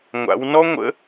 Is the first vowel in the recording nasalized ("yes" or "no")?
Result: no